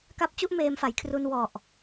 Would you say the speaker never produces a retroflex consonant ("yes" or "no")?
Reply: yes